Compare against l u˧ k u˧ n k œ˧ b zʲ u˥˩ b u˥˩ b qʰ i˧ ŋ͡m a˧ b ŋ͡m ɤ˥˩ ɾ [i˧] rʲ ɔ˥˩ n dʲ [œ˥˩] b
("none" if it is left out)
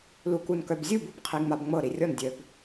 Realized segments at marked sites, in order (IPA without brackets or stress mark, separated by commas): i˧, œ˧